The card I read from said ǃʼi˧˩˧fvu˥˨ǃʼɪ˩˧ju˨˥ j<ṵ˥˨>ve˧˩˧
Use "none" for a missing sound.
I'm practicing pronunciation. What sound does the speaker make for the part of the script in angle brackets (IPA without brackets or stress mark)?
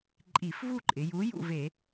ṵ˥˨